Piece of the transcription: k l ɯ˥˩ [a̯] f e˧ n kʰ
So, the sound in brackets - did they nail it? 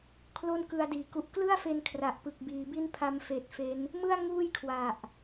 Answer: yes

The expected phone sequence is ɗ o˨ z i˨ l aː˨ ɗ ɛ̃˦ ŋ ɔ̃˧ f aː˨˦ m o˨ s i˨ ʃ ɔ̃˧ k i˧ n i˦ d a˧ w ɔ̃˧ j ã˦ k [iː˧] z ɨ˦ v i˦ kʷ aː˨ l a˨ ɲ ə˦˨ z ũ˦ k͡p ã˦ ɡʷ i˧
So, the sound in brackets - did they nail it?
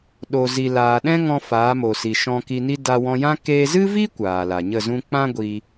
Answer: no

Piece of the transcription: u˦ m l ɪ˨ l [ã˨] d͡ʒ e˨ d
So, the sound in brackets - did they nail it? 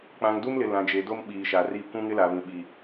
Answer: yes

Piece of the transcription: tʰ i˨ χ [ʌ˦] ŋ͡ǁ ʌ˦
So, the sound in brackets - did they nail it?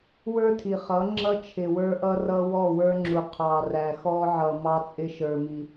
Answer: no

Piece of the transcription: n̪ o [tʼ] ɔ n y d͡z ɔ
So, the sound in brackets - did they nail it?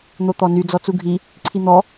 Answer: no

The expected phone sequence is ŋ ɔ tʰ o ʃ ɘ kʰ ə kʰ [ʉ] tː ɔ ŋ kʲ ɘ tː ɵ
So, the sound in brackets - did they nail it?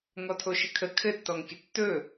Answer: no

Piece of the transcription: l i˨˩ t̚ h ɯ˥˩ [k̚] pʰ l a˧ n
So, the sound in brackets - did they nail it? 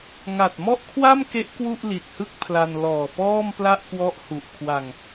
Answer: yes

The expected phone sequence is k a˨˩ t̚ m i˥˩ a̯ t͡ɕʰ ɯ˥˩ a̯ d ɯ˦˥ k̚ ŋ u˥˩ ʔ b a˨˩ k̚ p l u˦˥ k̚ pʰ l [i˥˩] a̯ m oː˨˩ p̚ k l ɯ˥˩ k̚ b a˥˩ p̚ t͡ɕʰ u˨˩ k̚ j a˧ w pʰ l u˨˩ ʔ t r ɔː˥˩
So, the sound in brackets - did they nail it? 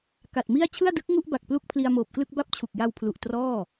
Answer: no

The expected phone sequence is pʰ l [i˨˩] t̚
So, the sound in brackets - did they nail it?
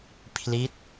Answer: no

